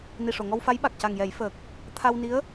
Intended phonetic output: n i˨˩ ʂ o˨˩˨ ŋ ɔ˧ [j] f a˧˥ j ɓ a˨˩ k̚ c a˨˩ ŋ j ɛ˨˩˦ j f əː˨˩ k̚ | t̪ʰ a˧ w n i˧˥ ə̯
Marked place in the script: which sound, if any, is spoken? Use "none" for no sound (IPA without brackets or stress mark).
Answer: w